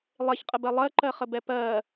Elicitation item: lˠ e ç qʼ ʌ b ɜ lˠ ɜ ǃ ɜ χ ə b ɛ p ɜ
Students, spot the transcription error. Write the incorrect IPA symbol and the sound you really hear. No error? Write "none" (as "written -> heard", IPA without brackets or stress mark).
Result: ʌ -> ə